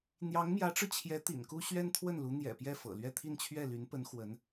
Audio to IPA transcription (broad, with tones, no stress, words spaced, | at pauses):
n̪jɑ˧˥ŋmjä˧˥ʈ͡ʂɻ̩˧t͡ɕʰjɛ˧˥ t̪ḭ˨˩nku˥ ɕɥɛ˥nt̪ʰwə˥˩nlu˧˥ n̪jɛ̰˨˩pjɛ˥˩fɤ̰˨˩ lɥɛ˥˧ t̪ʰi˥˧nt͡ɕʰɥɛ˥˩ly˧˥npə˧˥n xwə˧˥n